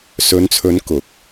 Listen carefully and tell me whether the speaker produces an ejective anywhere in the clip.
no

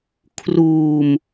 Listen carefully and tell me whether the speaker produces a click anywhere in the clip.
no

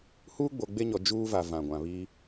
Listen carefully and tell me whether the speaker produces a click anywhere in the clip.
no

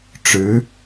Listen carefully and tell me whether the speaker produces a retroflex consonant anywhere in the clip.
yes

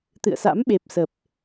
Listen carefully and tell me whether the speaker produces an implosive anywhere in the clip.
yes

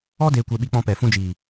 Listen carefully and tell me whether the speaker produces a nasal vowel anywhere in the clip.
yes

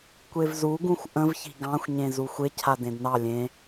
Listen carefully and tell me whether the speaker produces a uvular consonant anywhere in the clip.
no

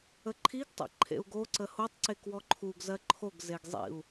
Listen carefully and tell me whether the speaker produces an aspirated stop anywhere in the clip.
yes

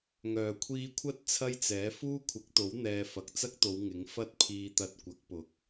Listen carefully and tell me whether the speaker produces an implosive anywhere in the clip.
no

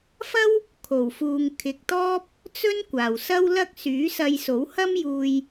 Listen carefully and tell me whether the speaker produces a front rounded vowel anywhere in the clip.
yes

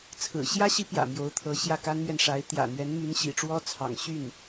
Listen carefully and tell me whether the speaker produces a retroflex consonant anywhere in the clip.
yes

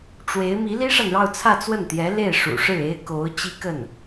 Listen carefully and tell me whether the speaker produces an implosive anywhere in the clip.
no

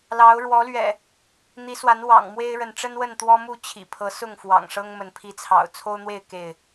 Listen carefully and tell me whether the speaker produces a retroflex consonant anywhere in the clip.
yes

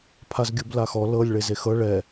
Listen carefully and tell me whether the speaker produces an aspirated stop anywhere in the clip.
yes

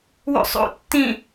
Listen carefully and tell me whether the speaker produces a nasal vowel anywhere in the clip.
yes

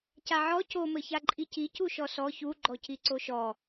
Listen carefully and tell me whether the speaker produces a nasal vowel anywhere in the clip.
no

